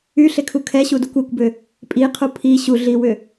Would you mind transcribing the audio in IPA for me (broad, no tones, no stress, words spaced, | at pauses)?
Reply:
yɬekʰu kʰɛɕudukʷ ekʷbʏ | pʼiqʰu pʰi ɕuɮiwʏ